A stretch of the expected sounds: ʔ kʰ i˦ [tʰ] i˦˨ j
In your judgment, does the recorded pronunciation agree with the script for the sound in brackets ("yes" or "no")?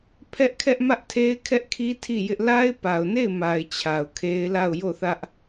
yes